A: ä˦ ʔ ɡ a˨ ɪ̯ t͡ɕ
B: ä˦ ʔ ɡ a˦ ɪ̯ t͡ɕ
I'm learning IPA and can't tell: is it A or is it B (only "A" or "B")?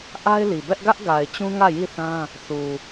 A